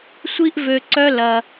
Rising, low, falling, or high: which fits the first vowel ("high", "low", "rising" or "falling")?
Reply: high